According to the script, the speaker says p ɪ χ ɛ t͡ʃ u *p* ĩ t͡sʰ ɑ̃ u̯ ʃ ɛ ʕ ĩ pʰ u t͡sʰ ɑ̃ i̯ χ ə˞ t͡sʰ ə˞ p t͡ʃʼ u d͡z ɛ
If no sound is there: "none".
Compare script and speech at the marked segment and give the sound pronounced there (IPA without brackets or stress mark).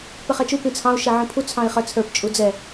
p